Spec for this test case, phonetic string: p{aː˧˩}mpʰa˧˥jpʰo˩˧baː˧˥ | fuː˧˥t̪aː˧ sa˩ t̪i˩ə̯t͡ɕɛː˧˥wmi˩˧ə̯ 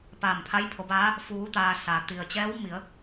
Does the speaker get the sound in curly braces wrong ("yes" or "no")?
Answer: no